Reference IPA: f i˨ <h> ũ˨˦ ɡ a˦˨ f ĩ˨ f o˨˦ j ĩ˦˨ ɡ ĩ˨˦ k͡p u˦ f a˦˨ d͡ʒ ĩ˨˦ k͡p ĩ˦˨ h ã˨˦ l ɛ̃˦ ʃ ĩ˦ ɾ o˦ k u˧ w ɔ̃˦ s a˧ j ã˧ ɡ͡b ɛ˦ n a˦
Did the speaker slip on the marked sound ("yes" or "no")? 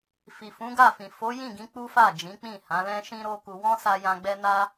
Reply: yes